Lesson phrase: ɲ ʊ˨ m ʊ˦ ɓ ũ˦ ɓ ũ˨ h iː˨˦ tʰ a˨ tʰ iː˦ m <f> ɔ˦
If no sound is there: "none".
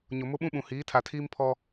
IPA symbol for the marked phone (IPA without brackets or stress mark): pʰ